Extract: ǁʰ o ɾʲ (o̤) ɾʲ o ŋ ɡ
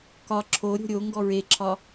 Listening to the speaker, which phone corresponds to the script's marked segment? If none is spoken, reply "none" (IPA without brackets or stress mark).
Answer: o̤